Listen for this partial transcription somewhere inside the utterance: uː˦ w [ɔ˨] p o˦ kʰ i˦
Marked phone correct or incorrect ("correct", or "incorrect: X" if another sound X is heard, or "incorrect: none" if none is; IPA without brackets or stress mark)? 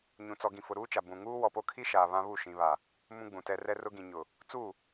correct